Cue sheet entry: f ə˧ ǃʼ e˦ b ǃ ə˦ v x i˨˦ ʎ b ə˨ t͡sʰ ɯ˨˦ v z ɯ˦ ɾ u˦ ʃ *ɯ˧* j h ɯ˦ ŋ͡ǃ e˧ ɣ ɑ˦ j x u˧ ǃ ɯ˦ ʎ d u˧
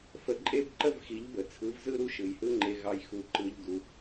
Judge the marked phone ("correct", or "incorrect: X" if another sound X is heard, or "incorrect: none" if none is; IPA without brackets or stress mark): incorrect: ɯ˨